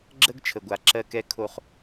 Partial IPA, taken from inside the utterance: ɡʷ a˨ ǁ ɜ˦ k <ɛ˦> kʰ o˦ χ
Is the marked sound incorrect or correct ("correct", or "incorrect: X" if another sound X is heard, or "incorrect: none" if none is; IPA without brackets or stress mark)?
correct